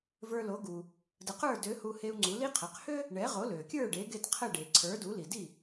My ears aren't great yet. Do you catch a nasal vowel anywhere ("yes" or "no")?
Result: no